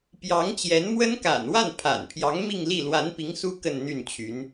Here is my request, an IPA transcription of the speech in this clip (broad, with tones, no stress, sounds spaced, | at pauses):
p j ɑ˧˥ ŋ t͡ɕ j ɛ˧˥ n m w ə˥ n k a̰˨˩ n w a˥˩ n pʰ a̰˨˩ n pʰ j ɑ˧˥ ŋ m i˥˧ ŋ l i˥˩ l w a˧˥ n p i˧˥ ŋ s u˥ k ə˥˧ n n̪ y˥˩ n t͡ɕʰ y˧˥ n